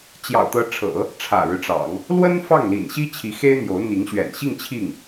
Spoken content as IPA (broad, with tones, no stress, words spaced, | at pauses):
t͡ɕjɑ̰˨˩ʊ̯t̪ɤ˧˥ʈ͡ʂʰɤ̰˨˩˦ | ʈ͡ʂʰä̰˨˩ɻɻ̩˦ʈ͡ʂɑ̰˨˩˦ŋ | lwə˥n fɑ˥˩ŋlḭ˨˩nɕi˥ t͡ɕʰi˧˥xe˥ɪ̯n̪jo˧˥ʊ̯n̪i˧˥ŋ ɕɥɛ̰˨˩nɕi˥˧ŋ t͡ɕʰi˥˩ŋ